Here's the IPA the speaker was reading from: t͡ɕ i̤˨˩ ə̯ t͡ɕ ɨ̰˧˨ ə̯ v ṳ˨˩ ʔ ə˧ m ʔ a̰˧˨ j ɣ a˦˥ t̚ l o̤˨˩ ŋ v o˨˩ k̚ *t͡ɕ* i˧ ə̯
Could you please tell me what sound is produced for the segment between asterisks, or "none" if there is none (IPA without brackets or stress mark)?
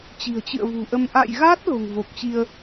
t͡ɕ